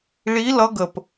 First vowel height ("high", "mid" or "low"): high